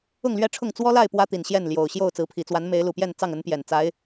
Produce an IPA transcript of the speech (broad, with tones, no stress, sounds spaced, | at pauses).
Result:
ʊ˥˨ ŋ l ɥ ɛ˥˨ ʈ͡ʂʰ ʊ˥˨ ŋ t͡s w ɔ˦ l a˥˨ ɪ̯ p w ä˦ t̪ i˨˩ n ɕ j ɛ˥˨ n l j o˨˩ ʊ̯ ɕ j o˥˨ ʊ̯ t͡s ɹ̩˨˦ pʰ i˨˩ t͡s w a˨˦ n m e˨˦ ɪ̯ l u˨˩ p j ɛ˥˨ n t͡s ɑ˥˨ ŋ ə˨˦ n p j ɛ˨˩ n t͡s a˨˦ ɪ̯